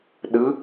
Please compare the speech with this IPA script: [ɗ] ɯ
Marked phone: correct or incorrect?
correct